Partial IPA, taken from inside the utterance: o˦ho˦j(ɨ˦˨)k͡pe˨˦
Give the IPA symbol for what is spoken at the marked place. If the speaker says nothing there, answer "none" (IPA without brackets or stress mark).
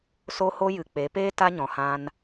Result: ɨ˨